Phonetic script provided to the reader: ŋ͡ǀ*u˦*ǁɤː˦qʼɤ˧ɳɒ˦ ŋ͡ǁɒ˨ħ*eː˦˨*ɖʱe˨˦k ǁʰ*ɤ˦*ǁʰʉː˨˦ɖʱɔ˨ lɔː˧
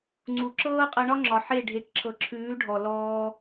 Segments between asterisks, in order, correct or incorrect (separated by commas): incorrect, incorrect, incorrect